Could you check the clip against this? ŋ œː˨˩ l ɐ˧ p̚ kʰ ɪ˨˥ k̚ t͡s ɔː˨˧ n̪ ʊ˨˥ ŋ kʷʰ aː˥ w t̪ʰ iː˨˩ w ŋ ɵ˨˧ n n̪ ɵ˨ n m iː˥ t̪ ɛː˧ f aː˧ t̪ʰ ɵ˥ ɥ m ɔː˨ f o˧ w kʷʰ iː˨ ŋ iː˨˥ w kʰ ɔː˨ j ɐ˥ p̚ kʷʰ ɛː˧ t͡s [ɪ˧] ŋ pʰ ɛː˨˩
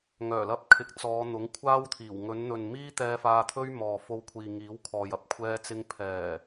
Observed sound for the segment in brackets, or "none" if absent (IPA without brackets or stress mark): ɪ˧